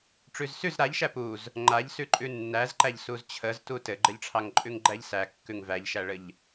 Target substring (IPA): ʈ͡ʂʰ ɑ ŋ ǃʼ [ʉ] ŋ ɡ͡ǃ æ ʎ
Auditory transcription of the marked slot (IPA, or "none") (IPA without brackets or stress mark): ʉ